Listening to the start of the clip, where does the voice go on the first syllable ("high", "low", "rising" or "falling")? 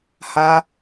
high